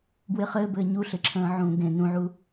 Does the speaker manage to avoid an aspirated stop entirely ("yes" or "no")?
no